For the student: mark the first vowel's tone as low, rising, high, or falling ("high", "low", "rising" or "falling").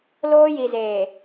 high